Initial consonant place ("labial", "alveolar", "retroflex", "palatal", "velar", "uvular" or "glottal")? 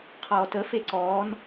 uvular